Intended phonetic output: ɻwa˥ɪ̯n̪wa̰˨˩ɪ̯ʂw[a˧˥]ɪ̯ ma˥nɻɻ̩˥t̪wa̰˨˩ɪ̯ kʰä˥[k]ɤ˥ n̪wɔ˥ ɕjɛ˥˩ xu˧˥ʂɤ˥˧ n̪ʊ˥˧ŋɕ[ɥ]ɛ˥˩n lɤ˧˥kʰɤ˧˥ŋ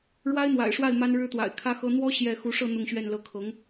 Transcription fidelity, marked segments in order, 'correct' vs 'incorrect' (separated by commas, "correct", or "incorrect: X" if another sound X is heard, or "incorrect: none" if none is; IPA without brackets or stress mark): incorrect: a˥˩, incorrect: x, correct